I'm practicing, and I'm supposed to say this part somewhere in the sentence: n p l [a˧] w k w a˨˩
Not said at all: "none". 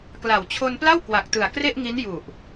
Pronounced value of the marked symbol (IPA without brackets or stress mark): a˥˩